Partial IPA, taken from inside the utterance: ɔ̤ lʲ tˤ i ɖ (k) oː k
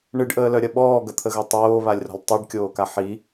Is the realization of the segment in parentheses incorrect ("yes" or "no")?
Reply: yes